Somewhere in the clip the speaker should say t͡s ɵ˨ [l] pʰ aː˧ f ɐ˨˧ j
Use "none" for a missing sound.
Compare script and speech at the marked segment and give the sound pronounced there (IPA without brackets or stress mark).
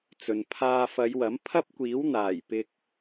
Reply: n